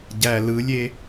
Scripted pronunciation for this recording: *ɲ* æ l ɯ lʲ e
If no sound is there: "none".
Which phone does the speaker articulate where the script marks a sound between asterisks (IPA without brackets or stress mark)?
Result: ɟ